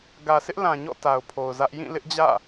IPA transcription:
ɡ ä˨ sʰ ɪ˦ ʔ l ã˨ ɲ ɔ̰˦˨ t a˨ ʊ̯ pʰ o˨ ʊ̯ z ä˦ ʔ j ĩ˦˨ l ɪ˦ ʔ d͡ʑ ä̰˦˨

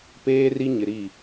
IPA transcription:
p eː˦ r i˦ ɲ ɪ˨ ɾ i˦˨

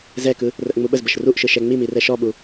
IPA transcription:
z ɛ k ɯ | r ə ʔ ŋ͡m u ɓ ə z b ə ʃ r u ʔ ʃ ɯ ʃ ɛ ŋ͡m i m i r ɛ ʃ ɔ ɓ u

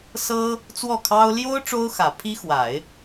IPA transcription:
s ɤ˥ | t͡s w ɔ˥˩ kʰ ɑ˥ ʊ̯ l j o˥ ʊ̯ ʈ͡ʂ o˥ ʊ̯ x ä˨˩ pʰ i˥ x w a˨˩˦ ɪ̯

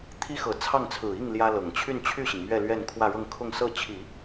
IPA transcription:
t̪ʰ i˥ x ɤ˨˩ t͡sʰ ɑ˥˩ ŋ t͡sʰ ɹ̩˨˩ i˥˩ ŋ l j ä˥ l ɤ˨˩ ŋ t͡ɕʰ y˥˧ n t͡ɕʰ y˥˩ ɕ i˩ ŋ m ɥ ɛ˥˧ l ɥ ɛ˥˧ n kʰ w ä˥˧ ɻ ɤ˥˧ ŋ kʰ ʊ˥˧ ŋ s ɤ˥˩ t͡ɕʰ i˨˩˦

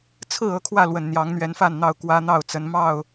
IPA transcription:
t͡sʰ ɹ̩˥˨ ɤ˦ kʰ w ä˥˨ l w ə˨˩ n n̪ j ɑ˨˦ ŋ n̪ ɥ ɛ˨˦ n f a˥˨ n n̪ ɑ˥˨ ʊ̯ k w ä˦ n̪ ɑ˥˨ ʊ̯ t͡s ə˨˦ n m ɑ˥˨ ʊ̯

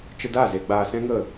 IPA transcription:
t͡ʃ ə˧ d a˦˨ z e˧ ɡ͡b aː˧ s ɛ̃˦ ŋ ə˦˨

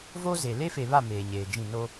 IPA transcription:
v o˦ z e˨ l e˦ f e˨ β a˦˨ m eː˨ ɲ eː˨ d͡ʒ ĩ˦˨ n o˦

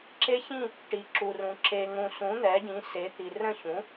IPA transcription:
ǁ e˦˥ ç ĩ˥˨ | ʈ i˨ ǁ u˨ r ũ˨ ǁ e˨ ŋ ũ˨ s ũ˩˥ n̪ ɛ˩˥ ɟ ĩ˩˥ s e˩˥ t̪ i˨ r ə̃˥˨ ç ũ˩˥

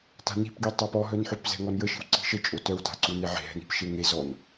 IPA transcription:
t a̤ n i̤ p ɡ i tˤ a p ɔ ɦ œ n ħ ø p z ɛ̤ ŋ ɔ n j ə ʃ i̤ w ǀ i̤ ʃ ə t͡ʃʼ o t œ w t a̤ ǀ u n e ʕ e̤ ɦ ɛ̤ n i̤ p ʃ e ŋ e z ɔ n

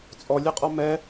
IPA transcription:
t͡sʼ ɔ lʲ e qʼ ɔ m ɛ

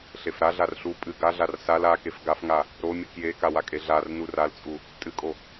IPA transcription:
ɬ e f ɾ a ɮ a r ɬ u pʼ ɨ ɡ a ɮ a r s a l a k e f ɡ a f ŋ a | ɾ o mʲ ɨ k j e k a w a kʼ e ɮ a r n u r a l t͡sʼ u | tʼ ɨ kʼ o

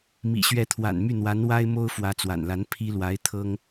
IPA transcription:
m ḭ˨˩ ɕ ɥ ɛ˧˥ t̪ʰ w a̰˨˩ n m y˥˩ n̪ w a˧˥ n w a˥ ɪ̯ m o˥ ʊ̯ f w ä˧˥ t͡s w a̰˨˩ n l a˧˥ n pʰ i˥ l w a˧˥ ɪ̯ t̪ʰ ɤ˥ ŋ

